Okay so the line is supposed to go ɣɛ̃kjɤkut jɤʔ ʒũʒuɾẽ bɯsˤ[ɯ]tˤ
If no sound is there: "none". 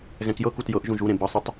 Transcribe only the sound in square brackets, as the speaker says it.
ə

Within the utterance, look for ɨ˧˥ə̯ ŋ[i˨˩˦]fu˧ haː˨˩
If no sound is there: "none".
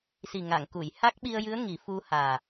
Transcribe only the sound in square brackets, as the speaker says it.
i˨˩˦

